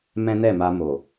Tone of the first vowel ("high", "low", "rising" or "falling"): high